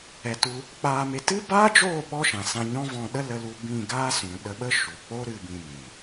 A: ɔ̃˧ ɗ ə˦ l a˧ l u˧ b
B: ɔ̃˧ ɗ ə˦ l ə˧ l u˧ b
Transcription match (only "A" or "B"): B